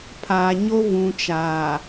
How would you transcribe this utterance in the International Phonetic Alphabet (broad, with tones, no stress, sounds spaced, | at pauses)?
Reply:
pʰ aː˨ ɲ o˦ v ũ˨ t͡ʃ a˨